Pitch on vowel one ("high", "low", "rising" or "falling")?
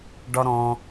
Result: high